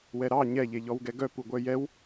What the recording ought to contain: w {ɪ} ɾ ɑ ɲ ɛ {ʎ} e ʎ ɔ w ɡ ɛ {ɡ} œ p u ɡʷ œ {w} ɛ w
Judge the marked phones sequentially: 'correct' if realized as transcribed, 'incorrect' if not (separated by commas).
incorrect, correct, correct, incorrect